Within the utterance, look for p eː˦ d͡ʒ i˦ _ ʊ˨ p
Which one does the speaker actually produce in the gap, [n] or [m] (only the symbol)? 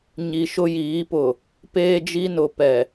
n